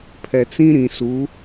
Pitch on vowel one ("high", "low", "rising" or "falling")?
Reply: low